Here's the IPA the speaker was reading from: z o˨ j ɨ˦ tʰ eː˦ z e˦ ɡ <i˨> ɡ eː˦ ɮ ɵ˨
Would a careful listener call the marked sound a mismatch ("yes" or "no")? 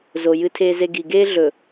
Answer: no